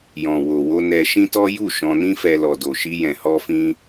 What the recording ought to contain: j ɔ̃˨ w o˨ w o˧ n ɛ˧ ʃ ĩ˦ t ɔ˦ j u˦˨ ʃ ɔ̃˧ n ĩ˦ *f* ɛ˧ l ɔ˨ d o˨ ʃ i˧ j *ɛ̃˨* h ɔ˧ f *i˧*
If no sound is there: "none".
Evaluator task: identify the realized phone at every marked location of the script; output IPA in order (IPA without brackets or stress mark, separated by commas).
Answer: f, ɛ̃˨, ĩ˧